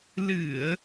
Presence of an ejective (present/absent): absent